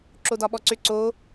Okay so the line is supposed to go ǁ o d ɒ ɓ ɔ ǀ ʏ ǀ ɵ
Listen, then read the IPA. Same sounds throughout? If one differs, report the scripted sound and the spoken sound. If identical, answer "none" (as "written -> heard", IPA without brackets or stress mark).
ɵ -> o